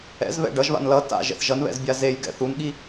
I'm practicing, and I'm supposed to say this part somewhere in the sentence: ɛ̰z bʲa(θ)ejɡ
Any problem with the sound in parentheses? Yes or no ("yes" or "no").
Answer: yes